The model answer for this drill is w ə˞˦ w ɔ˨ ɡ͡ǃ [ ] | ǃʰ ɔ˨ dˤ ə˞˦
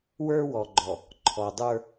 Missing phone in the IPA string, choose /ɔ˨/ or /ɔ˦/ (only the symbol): ɔ˨